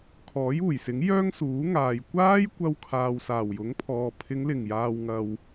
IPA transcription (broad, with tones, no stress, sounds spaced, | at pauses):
kʰ ɔː˨˥ j uː˨˩ j s ɪ˨˥ ŋ j œː˥ ŋ s uː˨˥ ŋ aː˨ j kʷ aː˥ j kʷ ɐ˧ w kʰ aː˨ w s aː˨˩ w j ʊ˨˥ ŋ pʰ ɔː˨ pʰ ɪ˨˧ ŋ l ɪ˨˩ ŋ j aː˨ w ŋ ɐ˨ w